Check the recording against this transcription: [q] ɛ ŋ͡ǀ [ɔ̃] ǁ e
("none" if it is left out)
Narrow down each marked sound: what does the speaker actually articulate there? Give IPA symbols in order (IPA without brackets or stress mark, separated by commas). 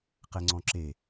q, ɔ̃